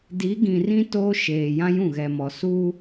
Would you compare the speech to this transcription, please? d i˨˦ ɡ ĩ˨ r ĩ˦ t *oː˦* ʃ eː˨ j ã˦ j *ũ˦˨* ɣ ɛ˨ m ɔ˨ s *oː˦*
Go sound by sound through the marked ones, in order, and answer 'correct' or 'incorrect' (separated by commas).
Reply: correct, correct, incorrect